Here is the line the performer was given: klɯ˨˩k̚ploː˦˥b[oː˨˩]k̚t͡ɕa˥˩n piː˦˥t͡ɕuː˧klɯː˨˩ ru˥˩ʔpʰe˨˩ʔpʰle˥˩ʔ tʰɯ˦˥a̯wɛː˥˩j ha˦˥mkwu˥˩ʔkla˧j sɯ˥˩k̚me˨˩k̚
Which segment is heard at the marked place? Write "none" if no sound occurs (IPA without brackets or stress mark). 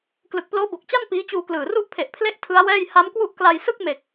o˨˩